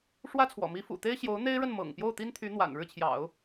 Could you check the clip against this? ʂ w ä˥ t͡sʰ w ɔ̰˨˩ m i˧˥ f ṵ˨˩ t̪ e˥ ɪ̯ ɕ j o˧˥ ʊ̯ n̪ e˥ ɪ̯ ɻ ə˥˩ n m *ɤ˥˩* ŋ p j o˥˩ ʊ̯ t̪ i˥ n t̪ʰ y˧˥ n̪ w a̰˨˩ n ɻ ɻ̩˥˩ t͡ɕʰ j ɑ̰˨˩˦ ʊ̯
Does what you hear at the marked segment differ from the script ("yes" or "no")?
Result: yes